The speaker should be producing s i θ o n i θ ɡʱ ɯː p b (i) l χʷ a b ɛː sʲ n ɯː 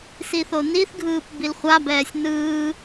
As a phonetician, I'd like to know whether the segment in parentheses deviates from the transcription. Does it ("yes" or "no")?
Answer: no